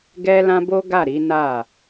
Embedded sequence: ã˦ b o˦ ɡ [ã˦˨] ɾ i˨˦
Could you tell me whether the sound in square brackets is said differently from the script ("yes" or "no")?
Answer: yes